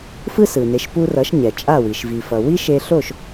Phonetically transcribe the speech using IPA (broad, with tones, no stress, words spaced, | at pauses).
fɯ˥sɯ˩ne˩˥ʃ pu˧rʌ˩˥ʃ ɲɛ˩t͡ʃʼa˥˩wi˩ʃ vi˩fʌ˩ wi˥ʃe˧ ɬo˥˩ʃ